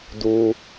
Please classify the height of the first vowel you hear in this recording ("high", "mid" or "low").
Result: high